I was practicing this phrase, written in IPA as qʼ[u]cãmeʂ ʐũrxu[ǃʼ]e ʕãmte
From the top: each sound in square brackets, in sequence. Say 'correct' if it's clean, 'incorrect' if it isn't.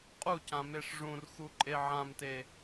correct, correct

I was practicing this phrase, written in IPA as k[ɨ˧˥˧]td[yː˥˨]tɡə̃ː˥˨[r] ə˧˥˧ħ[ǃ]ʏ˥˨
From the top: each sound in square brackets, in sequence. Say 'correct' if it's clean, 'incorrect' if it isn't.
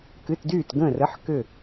correct, correct, correct, incorrect

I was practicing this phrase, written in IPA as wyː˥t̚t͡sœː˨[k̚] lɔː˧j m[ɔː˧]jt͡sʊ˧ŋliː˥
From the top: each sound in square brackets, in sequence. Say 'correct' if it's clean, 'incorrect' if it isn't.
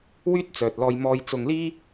incorrect, correct

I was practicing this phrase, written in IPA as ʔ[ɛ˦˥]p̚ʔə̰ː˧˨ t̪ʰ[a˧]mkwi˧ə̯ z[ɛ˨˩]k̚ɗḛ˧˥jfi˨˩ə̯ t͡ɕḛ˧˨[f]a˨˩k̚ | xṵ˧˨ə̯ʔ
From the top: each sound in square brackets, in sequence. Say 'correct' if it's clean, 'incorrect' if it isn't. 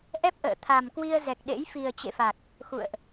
correct, incorrect, correct, correct

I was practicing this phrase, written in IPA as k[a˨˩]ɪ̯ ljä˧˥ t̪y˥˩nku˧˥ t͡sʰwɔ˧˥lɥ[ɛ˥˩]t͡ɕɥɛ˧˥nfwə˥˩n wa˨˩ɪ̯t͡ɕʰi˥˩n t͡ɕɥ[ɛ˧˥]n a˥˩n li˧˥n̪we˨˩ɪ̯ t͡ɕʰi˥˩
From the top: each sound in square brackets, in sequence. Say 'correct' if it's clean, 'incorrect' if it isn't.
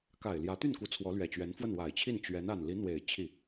correct, incorrect, correct

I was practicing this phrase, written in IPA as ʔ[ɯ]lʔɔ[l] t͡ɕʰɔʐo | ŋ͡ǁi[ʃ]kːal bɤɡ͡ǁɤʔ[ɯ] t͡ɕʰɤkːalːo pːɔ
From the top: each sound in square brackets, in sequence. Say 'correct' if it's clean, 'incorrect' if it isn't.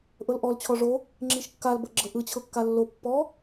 incorrect, correct, correct, correct

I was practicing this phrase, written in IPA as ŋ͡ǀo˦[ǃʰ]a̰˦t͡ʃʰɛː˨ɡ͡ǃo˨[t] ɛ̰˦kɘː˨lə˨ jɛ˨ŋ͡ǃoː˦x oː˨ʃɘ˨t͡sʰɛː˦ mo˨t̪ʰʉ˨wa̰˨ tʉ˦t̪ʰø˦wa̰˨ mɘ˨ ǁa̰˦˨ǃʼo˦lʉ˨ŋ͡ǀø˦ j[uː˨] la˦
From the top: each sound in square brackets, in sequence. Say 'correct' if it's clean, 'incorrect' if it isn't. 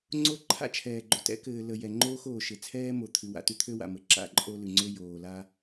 correct, correct, incorrect

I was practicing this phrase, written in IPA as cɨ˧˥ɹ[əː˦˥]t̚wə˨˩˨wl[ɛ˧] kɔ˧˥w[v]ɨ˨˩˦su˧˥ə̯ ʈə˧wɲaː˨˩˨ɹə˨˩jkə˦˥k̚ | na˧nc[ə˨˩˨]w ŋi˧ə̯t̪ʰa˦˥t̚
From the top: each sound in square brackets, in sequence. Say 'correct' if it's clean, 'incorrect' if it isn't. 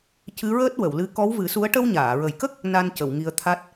correct, incorrect, correct, correct

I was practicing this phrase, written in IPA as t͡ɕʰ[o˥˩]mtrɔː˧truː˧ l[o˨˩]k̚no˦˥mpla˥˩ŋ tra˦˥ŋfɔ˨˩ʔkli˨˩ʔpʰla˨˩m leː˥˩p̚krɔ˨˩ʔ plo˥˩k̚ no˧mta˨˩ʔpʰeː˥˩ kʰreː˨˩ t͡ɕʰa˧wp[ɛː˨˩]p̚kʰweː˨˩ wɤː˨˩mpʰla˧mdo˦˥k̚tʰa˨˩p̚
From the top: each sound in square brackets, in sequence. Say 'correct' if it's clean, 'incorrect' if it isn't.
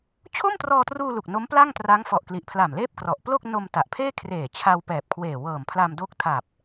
correct, incorrect, correct

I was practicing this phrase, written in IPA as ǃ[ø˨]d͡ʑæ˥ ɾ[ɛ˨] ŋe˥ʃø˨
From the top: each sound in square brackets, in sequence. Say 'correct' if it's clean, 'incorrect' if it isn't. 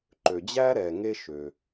correct, correct

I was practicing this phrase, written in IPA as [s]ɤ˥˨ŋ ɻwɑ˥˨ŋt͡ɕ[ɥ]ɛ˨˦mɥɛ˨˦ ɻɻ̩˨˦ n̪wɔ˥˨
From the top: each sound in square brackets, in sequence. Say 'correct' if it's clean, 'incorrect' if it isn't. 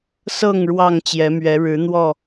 correct, incorrect

